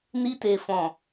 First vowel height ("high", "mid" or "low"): high